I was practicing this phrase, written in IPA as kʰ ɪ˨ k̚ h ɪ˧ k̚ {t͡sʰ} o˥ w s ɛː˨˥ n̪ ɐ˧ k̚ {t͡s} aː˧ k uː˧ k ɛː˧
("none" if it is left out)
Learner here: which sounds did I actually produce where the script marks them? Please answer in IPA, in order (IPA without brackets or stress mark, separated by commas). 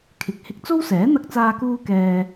t͡s, t͡s